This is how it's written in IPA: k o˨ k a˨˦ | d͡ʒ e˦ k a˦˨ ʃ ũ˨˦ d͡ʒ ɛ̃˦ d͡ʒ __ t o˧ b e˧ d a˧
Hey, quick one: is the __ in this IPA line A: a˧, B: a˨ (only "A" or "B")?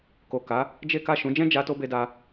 A